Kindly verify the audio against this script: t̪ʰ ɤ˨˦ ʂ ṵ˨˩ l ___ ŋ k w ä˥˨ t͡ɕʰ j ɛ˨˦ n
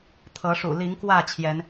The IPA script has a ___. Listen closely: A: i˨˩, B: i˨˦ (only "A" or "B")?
B